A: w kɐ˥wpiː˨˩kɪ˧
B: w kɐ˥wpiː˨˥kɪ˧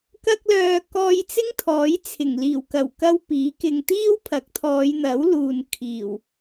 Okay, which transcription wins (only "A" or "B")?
B